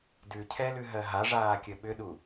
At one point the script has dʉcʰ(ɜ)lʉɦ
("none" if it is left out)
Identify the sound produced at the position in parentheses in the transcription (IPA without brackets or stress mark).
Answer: ɛ